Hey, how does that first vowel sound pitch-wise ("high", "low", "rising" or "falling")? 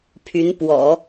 rising